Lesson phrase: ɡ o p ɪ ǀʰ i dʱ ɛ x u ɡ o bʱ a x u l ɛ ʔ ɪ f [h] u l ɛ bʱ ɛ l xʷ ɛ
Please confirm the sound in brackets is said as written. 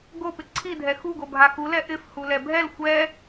yes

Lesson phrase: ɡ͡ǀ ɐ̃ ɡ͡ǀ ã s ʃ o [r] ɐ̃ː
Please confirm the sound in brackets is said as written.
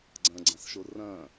yes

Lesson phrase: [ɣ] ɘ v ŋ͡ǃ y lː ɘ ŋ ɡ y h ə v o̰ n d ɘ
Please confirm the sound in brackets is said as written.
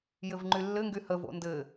no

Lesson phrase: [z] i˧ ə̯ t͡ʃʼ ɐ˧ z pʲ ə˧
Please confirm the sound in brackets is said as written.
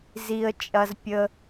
yes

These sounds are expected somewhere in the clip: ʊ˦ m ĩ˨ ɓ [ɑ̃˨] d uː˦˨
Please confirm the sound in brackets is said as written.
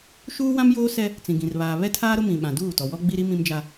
no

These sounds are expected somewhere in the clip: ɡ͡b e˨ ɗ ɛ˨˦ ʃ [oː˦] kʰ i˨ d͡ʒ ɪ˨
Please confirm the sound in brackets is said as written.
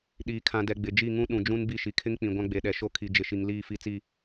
no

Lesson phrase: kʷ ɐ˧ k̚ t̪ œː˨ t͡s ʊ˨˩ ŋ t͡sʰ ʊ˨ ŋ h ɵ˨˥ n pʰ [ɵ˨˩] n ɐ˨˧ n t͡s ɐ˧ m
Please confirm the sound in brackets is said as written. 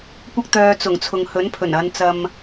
yes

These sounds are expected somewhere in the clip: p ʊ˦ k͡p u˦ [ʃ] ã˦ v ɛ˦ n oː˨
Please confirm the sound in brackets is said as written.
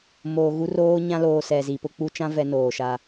no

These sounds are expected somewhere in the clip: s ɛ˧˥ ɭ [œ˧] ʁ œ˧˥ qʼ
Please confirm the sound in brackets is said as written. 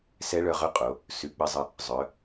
yes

